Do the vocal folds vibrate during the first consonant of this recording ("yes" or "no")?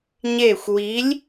yes